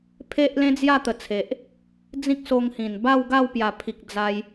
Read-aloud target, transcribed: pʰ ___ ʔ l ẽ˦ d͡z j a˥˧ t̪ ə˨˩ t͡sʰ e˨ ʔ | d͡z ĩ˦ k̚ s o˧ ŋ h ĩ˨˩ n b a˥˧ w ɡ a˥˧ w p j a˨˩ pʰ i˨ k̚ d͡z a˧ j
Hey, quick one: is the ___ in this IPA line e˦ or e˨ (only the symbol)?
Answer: e˦